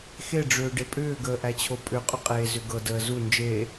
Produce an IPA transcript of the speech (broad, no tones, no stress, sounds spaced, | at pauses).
x e ɖ͡ʐ ʏː ɖ e pʼ ʏː ɡ əː ʔ æ t͡ɕʰ o pʼ ʏ qʼ ʏ qʼ eː z ʏ ɡ ɤ d əː z u n d͡ʒ eː